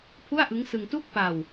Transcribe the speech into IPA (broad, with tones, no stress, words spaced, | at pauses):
pʰu˥˩a̯ʔɯ˦˥ŋsɯ˧ŋ tuː˥˩k̚pa˧w